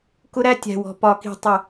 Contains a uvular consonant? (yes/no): no